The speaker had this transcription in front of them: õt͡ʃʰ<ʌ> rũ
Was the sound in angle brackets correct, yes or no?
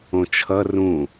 yes